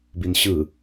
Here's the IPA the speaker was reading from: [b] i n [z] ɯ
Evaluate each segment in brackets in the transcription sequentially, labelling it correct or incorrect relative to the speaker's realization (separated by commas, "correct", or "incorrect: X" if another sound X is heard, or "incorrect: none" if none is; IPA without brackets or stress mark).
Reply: correct, incorrect: ɕ